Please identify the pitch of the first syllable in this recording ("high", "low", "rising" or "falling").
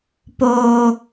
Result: high